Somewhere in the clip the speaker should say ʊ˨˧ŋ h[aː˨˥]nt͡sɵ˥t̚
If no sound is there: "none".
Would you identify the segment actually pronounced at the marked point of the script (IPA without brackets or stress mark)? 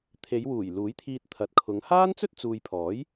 aː˥